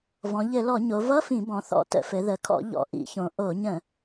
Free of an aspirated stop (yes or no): no